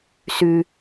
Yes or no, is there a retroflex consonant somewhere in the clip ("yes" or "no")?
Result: no